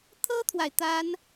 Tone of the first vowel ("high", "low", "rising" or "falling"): high